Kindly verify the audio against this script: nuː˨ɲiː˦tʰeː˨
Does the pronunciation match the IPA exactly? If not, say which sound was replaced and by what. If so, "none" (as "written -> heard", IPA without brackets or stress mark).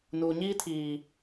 eː˨ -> iː˨